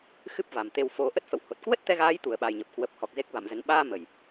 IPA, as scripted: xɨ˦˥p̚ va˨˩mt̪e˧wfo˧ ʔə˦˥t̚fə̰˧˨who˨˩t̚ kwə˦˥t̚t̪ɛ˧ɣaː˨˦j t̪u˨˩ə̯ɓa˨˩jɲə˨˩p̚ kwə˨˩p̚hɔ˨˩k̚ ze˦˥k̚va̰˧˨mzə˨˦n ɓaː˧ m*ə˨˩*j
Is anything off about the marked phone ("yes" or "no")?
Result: no